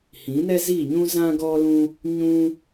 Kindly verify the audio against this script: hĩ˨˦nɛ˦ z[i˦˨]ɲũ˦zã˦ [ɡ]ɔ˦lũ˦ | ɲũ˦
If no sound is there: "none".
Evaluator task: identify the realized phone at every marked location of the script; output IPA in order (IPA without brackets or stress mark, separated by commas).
i˦˨, ɡ